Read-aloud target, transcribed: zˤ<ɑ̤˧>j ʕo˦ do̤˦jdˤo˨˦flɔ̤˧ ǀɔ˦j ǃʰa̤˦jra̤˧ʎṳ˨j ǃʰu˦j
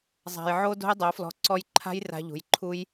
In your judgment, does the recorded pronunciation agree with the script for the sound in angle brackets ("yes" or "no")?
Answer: no